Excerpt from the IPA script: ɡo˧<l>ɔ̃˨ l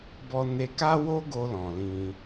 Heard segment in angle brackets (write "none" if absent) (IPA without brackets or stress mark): l